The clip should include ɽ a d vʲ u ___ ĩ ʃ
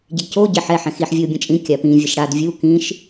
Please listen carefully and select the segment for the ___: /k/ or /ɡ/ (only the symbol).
k